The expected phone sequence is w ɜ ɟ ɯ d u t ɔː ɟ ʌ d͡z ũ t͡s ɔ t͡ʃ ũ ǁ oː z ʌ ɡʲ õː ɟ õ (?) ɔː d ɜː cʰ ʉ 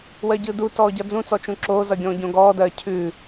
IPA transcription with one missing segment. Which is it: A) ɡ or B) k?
A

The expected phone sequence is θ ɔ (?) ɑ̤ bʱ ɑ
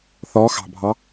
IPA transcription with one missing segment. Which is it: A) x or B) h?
A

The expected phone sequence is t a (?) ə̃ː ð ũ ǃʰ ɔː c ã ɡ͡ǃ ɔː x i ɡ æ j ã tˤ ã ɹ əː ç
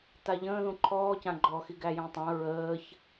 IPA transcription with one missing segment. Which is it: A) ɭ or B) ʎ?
B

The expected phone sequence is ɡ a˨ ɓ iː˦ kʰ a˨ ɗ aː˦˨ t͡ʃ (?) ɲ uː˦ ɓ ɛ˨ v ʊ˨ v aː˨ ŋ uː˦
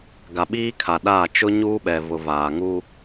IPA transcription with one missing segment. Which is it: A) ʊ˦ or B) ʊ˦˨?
A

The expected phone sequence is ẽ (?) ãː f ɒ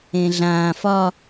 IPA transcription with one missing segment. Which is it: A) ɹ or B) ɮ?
B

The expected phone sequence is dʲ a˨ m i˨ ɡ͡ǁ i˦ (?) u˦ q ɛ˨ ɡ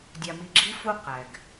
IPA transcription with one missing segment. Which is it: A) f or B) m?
A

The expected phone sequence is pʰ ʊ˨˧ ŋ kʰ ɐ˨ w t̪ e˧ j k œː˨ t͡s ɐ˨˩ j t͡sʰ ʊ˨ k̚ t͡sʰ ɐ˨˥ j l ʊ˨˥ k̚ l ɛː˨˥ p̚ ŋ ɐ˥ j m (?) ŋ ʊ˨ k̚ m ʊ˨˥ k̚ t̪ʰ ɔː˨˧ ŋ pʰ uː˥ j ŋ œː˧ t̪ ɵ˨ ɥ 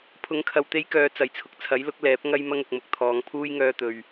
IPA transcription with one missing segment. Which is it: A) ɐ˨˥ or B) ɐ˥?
B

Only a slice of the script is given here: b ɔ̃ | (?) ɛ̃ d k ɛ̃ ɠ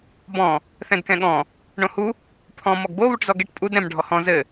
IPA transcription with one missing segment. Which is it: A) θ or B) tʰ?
A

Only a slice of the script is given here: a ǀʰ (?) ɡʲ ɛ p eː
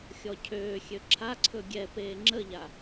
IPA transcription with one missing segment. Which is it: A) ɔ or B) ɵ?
B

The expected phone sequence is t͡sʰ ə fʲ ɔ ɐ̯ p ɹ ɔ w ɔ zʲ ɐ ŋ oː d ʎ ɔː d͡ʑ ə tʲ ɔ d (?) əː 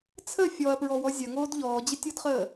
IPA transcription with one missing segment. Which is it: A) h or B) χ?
B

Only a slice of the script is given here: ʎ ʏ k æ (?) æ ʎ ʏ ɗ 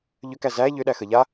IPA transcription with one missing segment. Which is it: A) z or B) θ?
A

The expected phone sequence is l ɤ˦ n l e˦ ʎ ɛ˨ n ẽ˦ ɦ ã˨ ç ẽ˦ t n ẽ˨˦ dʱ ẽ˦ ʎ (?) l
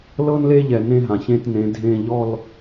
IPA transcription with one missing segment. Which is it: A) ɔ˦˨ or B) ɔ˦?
A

